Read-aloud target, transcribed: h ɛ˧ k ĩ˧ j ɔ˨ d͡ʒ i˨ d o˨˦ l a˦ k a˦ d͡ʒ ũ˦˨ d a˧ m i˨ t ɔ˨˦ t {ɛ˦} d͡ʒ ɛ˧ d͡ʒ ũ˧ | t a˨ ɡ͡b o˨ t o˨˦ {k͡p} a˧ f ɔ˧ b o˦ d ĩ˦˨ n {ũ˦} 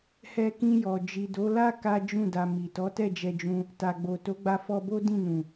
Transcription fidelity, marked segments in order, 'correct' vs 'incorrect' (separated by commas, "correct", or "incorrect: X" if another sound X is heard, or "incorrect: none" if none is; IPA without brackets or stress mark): incorrect: ɛ˦˨, incorrect: ɡ͡b, incorrect: ũ˨